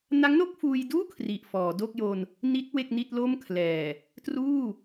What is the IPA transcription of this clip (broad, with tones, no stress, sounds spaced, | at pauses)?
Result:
n a˦˥ ŋ n o˥˩ k̚ f uː˧ j d uː˥˩ kʰ r i˨˩ ʔ f ɔː˩˦ d o˥˩ k̚ j o˧ n | n i˦˥ t̚ w e˥˩ k̚ n i˥˩ t̚ l o˥˩ m kʰ l ɛː˨˩ | t r uː˥˩